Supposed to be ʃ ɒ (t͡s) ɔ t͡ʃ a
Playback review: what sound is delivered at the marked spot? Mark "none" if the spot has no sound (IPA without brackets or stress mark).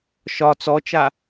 t͡s